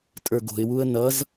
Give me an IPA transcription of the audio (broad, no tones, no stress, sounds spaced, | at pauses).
tʼ ə˞ ɡ o̤ ɪ̯ w u ə̯ n ʌ z